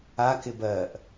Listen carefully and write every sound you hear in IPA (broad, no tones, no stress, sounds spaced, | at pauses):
a k ɪ b ɜ ʔ